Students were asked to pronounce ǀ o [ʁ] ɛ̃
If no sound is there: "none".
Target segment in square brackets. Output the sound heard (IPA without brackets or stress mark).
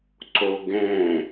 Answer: ɡ